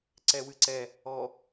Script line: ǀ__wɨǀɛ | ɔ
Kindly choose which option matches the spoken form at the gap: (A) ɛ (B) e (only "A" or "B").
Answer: A